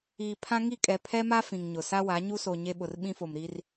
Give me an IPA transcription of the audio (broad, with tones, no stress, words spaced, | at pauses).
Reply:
iː˨pʰã˦ ŋi˦˨kʼɛ˨ pʰɛ˦ma˦ fĩ˨ŋɲʊ˨ sa˦wa˨˦ɲu˦so˨ ɲe˦ɓʊ˨rɓĩ˦fo˨m ɾi˦r